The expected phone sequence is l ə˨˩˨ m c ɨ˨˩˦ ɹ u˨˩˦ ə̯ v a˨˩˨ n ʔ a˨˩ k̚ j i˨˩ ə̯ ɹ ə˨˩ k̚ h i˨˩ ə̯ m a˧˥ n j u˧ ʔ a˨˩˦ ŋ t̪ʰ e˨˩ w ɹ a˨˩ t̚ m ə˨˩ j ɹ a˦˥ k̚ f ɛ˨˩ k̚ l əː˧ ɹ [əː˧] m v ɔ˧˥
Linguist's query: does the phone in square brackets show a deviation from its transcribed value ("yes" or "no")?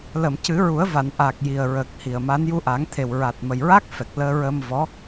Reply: no